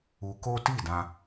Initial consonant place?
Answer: velar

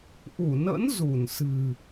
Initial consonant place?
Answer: glottal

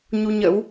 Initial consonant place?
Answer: palatal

